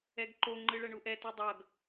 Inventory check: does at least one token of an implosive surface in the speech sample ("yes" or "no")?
no